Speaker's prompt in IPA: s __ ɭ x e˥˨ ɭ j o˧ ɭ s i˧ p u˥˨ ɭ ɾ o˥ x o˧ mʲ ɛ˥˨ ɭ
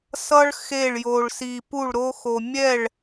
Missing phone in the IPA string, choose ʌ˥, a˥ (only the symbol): ʌ˥